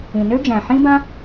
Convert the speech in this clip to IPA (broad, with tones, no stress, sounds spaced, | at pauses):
ĩ˩ n ø˦ d͡ʒ æ̃˩ ħ ĩ˦ b ã˦